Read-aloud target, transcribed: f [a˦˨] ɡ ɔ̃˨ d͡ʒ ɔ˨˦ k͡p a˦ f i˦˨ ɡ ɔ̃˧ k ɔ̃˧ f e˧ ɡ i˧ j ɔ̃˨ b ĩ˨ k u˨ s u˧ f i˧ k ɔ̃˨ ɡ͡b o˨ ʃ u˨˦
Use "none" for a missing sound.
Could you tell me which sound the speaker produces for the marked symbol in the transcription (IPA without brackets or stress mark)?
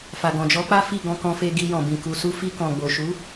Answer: a˨